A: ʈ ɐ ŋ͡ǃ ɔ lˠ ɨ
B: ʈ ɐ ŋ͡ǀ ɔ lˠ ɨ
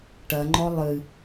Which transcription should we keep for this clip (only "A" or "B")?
A